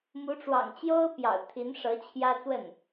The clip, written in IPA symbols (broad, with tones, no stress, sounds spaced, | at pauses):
m u˧˥ ʈ͡ʂ w ɑ̰˨˩ ŋ t͡ɕ j o˥ ʊ̯ p j ɑ̰˨˩ ʊ̯ t̪ʰ i˧˥ n ʂ ɤ˧˥ t͡ɕʰ j ä˥ t͡s w ə˥˩ n